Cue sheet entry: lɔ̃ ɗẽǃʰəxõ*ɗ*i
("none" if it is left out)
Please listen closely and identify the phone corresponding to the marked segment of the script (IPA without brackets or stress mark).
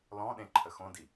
d